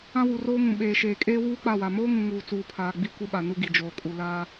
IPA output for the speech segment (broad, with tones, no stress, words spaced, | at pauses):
ã˦wu˨roː˦ŋũ˨ ɓeː˨ʃeː˨kʼeː˦ wuː˦k͡pa˦˨wa˨ moː˦ŋũ˨ ŋuː˨t͡suː˨pʰaː˨ ɡ͡bi˦kʷe˦ɓa˨ nu˦ɡi˨ d͡ʒoː˨kʼu˨laː˦